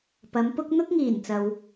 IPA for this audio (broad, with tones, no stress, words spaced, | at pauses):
pɐ˨˧mpʊ˥k̚ n̪ʊ˥k̚ŋiː˨˩nt͡sɐ˨w